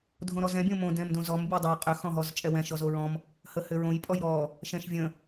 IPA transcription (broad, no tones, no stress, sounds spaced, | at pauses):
dʱ õ ɾ ɔ z ɛ̃ bʲ õ m õ d ɛ̃ m d õ z ɔ m bʲ o dˤ o qʼ ʏ x ɔ̃ ɦ ɔ z t͡ʃʼ ɛ w ɛ̃ ʃ ɔ z o ɹ ɔ̃ m | h ə h ʏ ɹ õ j pʼ ɔ j ɾ ɔ | ʃ ɛ̃ ʃ vʲ ə̃